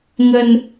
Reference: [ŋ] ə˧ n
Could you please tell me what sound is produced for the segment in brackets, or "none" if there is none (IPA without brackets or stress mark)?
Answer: ŋ